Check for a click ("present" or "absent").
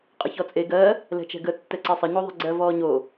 present